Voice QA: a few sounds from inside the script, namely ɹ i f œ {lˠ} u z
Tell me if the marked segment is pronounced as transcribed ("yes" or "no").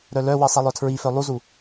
yes